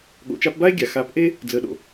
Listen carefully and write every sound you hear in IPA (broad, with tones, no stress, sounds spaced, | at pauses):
ɠ o̰˨ t͡ʃ a˧ p b a˦ e̯ ɡʲ a˨ x a˨˦ p ʔ e˦ | d͡z əː˨ ɗ o̰˨